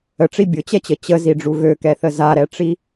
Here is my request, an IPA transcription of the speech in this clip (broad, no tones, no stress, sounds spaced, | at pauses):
ə ʈ͡ʂ i bʲ ʊ t͡ɕ ɛ t͡ɕ ə t͡ɕ ə z i ɖ͡ʐ u ɣ ø k ɛ θ ə z a ɾ ɛ ʈ͡ʂ i